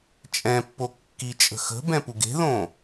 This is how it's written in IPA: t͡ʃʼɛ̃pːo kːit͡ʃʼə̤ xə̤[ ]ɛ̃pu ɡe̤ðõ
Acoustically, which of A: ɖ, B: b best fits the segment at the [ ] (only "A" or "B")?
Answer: B